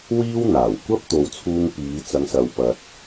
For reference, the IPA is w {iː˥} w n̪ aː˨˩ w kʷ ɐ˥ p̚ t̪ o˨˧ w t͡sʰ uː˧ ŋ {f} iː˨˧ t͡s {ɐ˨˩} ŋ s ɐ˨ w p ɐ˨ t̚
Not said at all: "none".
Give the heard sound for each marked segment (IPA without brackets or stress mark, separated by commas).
iː˥, p, ɐ˨˧